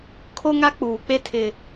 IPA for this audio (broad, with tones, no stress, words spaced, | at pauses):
kʰo˦ŋa˦ k͡puː˨k͡pe˦ tʰɪ˨